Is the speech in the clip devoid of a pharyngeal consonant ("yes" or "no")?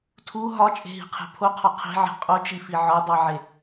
no